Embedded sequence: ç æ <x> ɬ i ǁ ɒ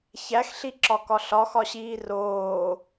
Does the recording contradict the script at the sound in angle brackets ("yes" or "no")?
no